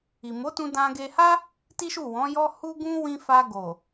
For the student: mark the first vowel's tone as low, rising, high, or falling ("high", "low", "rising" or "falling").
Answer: low